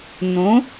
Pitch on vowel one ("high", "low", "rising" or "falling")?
rising